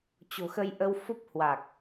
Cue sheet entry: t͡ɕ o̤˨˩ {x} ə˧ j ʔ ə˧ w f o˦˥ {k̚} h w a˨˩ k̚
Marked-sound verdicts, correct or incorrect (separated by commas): correct, incorrect